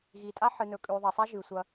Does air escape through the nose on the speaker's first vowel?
no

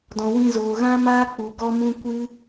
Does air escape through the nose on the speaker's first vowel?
yes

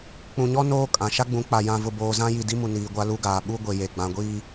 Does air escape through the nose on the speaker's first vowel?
yes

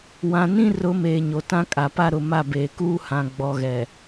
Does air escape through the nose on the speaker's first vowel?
yes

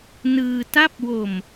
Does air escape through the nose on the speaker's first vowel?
no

